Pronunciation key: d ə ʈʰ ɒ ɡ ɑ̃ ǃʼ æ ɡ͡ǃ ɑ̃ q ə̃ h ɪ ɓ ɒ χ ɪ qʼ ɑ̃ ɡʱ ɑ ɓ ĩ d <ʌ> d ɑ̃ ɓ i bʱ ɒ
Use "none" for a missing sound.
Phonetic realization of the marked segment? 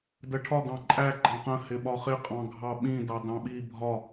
ɑ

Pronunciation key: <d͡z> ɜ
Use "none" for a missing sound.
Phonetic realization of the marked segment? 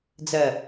d͡z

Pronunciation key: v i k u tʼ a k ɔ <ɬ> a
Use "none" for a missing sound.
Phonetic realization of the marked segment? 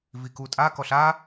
ɬ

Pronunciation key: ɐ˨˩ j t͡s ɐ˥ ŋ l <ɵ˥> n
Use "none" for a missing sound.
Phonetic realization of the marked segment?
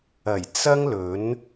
ɵ˨˥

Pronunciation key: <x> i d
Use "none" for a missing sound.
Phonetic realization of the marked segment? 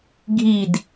ɡʱ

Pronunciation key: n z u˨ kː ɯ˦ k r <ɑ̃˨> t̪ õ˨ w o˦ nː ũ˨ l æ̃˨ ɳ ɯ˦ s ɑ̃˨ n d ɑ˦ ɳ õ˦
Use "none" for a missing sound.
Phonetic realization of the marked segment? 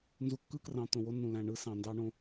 ɑ̃˨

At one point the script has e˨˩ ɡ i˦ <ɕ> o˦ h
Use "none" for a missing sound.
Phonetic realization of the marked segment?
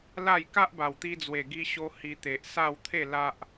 ɕ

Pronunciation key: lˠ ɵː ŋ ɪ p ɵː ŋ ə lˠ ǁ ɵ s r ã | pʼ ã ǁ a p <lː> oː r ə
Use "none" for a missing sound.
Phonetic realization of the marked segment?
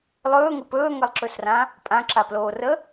l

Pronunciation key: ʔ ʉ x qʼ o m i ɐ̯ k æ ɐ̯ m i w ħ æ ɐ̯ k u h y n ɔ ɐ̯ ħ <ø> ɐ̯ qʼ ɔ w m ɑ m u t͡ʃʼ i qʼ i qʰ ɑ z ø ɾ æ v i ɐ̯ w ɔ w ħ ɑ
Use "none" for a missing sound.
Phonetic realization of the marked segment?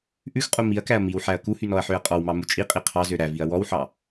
ø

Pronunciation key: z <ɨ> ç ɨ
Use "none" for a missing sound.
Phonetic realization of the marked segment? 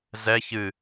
ɛ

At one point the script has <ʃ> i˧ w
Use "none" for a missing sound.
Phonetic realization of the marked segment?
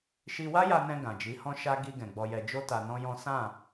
ʃ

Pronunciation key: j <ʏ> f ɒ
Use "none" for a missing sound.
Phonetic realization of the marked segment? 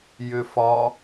ʏ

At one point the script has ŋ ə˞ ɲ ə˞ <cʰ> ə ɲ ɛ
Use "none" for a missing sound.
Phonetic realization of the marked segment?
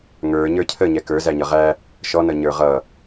cʰ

